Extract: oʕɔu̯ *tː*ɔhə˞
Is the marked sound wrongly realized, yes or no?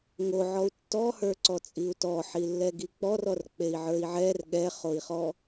no